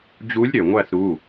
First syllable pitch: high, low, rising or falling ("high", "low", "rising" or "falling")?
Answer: rising